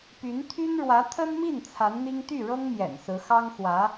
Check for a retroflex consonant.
present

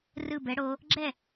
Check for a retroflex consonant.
present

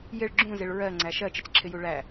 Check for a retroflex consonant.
present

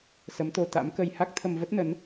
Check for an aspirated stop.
present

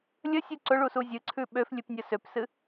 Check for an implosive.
present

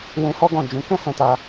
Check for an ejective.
absent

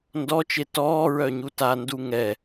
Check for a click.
absent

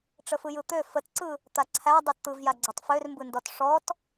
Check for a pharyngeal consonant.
absent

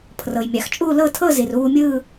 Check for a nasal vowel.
absent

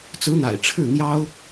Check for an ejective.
absent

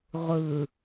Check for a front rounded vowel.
absent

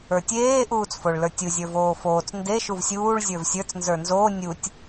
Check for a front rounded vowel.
absent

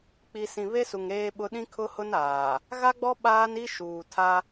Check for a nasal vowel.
present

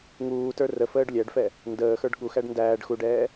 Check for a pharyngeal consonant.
absent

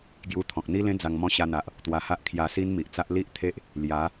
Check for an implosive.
absent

